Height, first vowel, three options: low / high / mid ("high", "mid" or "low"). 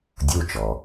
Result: high